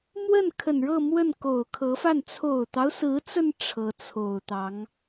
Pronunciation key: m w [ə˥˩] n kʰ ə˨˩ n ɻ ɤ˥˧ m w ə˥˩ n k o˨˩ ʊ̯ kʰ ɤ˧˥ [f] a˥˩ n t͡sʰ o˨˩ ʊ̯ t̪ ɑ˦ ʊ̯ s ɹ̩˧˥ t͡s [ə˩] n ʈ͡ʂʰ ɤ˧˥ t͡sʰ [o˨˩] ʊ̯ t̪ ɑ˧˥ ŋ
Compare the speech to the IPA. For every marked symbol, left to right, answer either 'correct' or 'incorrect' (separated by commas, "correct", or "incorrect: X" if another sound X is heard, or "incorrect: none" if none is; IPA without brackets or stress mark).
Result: correct, correct, incorrect: ə˧, correct